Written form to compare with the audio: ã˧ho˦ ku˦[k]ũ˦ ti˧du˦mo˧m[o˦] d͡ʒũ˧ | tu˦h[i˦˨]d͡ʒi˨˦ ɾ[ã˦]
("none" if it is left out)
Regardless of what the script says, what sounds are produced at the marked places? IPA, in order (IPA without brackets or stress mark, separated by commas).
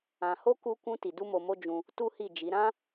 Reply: k, o˦, i˦˨, ã˦